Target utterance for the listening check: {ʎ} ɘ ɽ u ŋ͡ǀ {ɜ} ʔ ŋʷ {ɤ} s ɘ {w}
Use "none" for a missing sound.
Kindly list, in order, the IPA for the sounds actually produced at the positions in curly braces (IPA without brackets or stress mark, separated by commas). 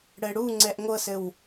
ɽ, ɛ, ɤ, w